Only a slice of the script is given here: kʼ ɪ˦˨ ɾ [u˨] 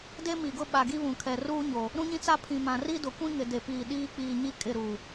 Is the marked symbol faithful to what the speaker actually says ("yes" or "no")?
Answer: yes